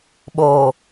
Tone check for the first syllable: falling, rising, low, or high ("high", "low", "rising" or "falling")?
low